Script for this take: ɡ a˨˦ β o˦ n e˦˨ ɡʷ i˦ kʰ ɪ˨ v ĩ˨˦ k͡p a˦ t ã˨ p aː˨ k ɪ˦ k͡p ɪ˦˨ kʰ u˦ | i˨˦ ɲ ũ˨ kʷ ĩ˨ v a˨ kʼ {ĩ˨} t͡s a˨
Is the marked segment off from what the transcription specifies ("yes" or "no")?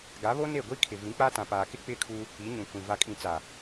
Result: no